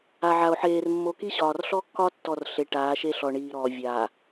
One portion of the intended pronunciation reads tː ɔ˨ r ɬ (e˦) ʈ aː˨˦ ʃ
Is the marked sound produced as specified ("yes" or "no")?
no